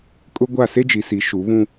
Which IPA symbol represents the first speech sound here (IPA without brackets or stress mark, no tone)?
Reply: kʼ